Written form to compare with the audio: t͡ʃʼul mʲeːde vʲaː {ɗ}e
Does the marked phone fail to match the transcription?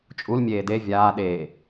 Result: no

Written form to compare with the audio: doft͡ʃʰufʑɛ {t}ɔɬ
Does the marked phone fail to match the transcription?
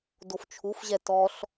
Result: no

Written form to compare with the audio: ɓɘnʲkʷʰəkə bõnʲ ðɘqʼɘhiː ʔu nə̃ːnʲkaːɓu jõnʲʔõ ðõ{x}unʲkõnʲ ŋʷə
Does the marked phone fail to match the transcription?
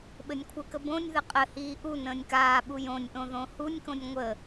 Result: yes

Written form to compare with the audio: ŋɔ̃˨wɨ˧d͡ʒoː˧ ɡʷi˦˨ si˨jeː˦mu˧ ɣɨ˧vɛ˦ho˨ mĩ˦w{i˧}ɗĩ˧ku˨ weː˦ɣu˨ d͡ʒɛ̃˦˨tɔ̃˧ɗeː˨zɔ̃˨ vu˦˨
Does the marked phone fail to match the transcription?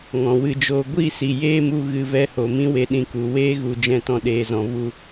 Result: yes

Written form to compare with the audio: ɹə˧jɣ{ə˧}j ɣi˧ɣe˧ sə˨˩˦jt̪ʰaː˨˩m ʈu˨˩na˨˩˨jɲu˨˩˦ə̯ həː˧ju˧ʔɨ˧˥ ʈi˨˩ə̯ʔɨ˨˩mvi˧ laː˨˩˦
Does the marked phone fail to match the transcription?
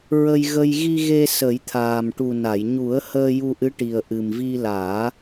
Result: no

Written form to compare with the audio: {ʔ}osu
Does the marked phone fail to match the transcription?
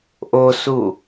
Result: no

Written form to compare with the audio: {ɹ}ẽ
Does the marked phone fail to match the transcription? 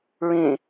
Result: no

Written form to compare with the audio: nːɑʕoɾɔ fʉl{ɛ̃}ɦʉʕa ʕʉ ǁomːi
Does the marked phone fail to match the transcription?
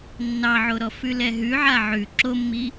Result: yes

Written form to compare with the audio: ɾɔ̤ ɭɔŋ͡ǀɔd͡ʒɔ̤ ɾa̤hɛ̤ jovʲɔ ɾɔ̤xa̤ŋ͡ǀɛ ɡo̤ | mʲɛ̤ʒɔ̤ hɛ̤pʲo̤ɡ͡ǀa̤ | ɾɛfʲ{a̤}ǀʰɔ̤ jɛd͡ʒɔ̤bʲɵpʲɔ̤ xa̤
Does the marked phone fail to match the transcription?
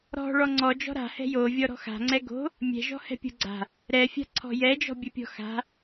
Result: no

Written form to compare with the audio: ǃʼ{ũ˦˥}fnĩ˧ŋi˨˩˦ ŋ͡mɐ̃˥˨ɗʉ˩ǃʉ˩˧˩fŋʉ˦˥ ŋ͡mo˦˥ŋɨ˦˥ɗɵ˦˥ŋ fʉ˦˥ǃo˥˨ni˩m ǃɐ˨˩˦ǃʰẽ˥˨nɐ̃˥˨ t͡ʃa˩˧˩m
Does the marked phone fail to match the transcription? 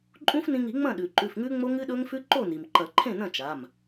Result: no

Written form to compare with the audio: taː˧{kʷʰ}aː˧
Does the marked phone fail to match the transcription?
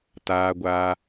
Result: yes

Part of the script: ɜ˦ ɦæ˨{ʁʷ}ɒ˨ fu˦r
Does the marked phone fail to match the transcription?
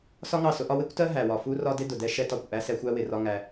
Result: yes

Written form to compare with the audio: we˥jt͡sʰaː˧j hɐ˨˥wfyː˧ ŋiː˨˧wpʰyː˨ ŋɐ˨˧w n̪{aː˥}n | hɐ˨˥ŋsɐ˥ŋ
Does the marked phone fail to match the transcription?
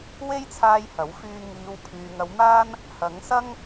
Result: no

